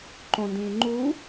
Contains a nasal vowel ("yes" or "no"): yes